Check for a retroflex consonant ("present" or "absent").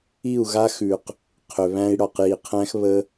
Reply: present